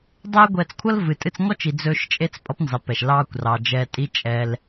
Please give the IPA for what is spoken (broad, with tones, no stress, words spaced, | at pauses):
dˤɛː˦ ɡʷɛː˧t͡skʷʰʌ˦l vɨ˨tʼɨ˧t͡sŋɔ˦t͡ʃi˨ d͡zɵː˧ʃt͡ʃʼe˦t͡s pʼʌ˦pnzɑ˨˦pɛ˨ʃ lɑː˧kʷrɑ˨ d͡ʒɛ˧tʼi˦ t͡ʃʼɛ˧l